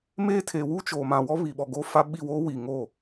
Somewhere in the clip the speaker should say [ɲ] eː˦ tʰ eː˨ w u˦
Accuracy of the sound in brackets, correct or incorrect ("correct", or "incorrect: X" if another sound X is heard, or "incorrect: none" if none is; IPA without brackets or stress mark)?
incorrect: m